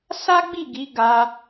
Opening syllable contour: high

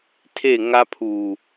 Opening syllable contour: falling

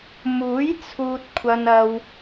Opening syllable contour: rising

